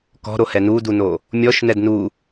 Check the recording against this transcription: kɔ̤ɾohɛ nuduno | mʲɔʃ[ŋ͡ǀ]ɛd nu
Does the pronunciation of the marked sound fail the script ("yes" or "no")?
yes